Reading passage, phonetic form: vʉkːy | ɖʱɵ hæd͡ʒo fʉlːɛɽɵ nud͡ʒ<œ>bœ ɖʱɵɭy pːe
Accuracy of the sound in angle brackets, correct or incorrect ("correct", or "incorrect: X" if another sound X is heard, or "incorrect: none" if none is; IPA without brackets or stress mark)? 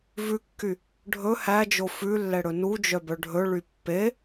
correct